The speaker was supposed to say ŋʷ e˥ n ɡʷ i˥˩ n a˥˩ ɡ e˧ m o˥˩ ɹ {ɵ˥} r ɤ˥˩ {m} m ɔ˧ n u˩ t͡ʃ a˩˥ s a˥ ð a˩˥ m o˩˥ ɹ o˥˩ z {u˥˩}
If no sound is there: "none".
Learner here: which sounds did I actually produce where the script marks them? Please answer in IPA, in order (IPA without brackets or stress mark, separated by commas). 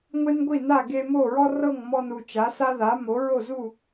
ɔ˥, ŋ, u˥˩